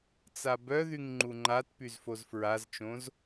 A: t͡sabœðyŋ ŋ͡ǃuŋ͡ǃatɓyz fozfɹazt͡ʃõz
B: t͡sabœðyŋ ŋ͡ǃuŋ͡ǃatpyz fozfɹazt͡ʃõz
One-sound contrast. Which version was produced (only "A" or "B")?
B